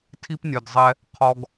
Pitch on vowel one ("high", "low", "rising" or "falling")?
high